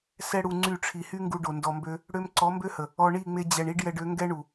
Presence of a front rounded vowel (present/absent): present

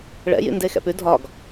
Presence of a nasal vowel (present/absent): absent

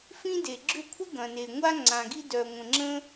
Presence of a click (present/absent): present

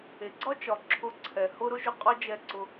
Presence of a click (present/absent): present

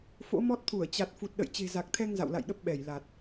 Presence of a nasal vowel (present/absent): absent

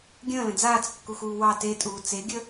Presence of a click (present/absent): absent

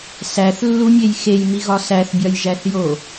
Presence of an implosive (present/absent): absent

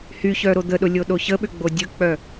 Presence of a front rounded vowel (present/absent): present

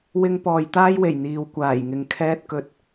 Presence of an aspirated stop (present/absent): present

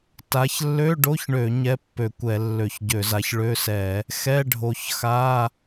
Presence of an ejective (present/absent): absent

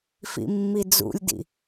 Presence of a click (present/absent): absent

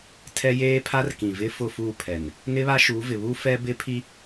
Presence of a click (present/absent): absent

